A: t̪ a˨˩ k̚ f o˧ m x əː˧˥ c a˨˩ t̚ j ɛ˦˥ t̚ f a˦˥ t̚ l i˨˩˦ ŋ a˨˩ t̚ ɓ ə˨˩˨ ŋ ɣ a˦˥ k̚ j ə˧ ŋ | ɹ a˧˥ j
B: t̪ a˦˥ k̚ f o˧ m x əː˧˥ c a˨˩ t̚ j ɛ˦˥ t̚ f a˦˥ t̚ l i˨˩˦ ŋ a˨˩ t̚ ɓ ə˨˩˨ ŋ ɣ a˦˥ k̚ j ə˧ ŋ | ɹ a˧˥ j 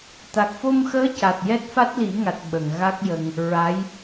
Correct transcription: A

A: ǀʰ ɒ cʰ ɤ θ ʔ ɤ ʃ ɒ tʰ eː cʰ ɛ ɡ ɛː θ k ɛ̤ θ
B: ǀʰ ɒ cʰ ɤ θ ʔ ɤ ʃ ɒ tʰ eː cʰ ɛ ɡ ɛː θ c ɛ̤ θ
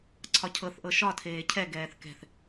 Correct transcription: A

